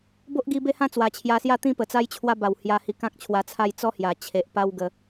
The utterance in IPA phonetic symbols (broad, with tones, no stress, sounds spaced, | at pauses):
b o˦ ʔ ɡ i˧ b e˦ h ã˥˧ t͡s w a˨˩ t͡ɕʰ j a˧ s j a˥˧ t̪ ĩ˥˧ p ə˨˩ t͡s a˦ j t͡ɕʰ w a˦ b a˨˩ w h j a˧ h i˧ k ã˦ k̚ t͡ɕʰ w a˧ t͡sʰ a˥˧ j t͡s ɔ˦ h j a˨˩ t͡ɕʰ e˨ ʔ p a˦ w ɡ ə˧